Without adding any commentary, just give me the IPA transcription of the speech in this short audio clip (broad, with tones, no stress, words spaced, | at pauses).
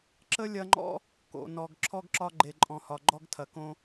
ǁə˥lʲɐ˦ŋ͡ǃɔ̰˥ | ko̰˩nɔ˩ɡ ǁʰɔ˥ɡǁɒ˥ ɡ͡ǃe˨ǃʼɔ̃˨hɒ˨ ɡ͡ǃɔ˥ɡtʰɐ˨kõ˥